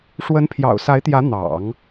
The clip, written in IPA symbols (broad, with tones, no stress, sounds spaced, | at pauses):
ʂ w ə˧˥ n pʰ j ɑ̰˨˩ ʊ̯ s a˧˥ ɪ̯ t̪ j ä˧˥ n̪ ɑ̰˨˩˦ ŋ